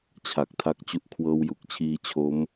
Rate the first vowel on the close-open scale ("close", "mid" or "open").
open